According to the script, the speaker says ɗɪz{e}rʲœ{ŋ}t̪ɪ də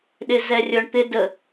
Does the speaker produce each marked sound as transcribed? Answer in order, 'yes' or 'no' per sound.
no, no

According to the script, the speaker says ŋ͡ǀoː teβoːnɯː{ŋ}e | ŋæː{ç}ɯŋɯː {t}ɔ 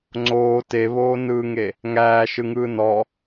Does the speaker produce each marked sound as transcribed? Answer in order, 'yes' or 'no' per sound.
yes, no, no

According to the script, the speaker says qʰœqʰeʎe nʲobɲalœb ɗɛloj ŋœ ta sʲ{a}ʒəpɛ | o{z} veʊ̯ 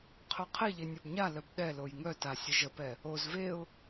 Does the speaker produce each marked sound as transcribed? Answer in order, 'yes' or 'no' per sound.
no, yes

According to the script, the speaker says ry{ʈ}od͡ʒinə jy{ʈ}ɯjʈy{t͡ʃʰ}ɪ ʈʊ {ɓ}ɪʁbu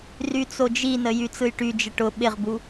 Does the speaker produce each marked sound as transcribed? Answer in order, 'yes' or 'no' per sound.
no, no, no, yes

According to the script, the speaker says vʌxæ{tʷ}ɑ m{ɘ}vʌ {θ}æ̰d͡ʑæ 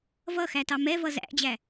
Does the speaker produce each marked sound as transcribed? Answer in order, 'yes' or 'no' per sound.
no, no, no

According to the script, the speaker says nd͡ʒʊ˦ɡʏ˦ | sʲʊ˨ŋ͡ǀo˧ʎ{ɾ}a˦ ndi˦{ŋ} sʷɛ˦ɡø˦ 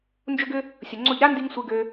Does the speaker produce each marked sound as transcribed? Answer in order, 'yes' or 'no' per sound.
yes, yes

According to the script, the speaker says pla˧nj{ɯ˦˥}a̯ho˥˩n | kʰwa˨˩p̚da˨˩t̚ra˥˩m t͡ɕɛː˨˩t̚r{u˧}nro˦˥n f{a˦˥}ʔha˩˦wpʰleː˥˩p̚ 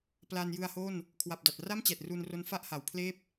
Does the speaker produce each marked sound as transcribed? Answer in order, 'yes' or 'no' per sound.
no, yes, no

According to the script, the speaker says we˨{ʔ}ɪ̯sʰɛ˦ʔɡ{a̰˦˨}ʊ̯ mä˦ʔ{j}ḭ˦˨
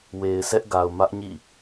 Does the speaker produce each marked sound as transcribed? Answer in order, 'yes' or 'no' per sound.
no, no, no

